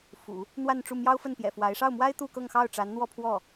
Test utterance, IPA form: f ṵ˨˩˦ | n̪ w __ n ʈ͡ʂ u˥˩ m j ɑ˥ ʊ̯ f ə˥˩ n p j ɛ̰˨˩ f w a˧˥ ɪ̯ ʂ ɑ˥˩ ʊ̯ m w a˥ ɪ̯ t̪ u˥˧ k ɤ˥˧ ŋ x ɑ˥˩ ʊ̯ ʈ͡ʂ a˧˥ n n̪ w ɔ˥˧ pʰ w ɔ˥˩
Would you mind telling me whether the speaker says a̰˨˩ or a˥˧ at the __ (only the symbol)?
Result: a˥˧